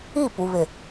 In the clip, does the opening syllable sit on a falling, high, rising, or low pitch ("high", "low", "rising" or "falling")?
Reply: falling